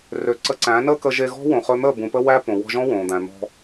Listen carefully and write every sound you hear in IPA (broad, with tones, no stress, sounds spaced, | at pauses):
r ø˧ ǀ ə˧ ǀ æ̃˨˦ n əː˦ k ə˧ ʒ e˧ ɣ ɔ̤˦ w õ˨ χ ɵ˧ n̪ əː˦˨ b ũ˨ p ə˧ w æ˦ p õ˨ w ɔ̤˧ ʒ ɔ̃˦ w õː˨ d̪ æ̃˨ n̪ ɔ̤˧